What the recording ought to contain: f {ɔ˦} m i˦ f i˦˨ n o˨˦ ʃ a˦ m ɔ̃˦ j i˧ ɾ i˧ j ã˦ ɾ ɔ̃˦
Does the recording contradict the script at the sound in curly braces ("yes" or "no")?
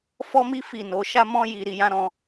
no